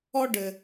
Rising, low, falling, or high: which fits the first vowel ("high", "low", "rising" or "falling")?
high